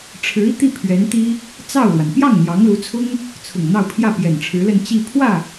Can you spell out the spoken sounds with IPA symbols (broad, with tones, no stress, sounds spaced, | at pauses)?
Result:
ʈ͡ʂʰ ɻ̩˧˥ i˧ t̪ i˥˩ pʰ ɥ ɛ˧˥ n t̪ i˥ | t͡s ɑ˥˩ ʊ̯ l w a˩ n p j ɑ˥˩ ŋ n̪ j ɑ˧˥ ŋ l u˧˥ t͡sʰ ʊ˥ ŋ | t͡sʰ ʊ˨˩ ŋ n̪ ɑ˥˧ ʊ̯ pʰ j ä˥˩ p j ɛ˨˩ n ʈ͡ʂʰ ɻ̩˧˥ l ə˥˧ n t͡ɕ i˥˧ pʰ w ä˥˩